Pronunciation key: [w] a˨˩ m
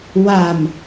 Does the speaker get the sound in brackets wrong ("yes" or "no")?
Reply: no